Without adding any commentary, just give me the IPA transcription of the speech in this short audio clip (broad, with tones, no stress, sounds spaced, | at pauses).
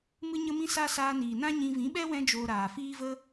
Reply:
m ɨ˦ ɲ ə˦ m ĩ˦ s a˦ s aː˧ n iː˨ n ã˦ ɲ ĩ˧ v ĩ˨˦ ɓ ɛ˦ w ɛ̃˦ d͡ʒ oː˧ ɾ aː˨ f iː˧ v ə˧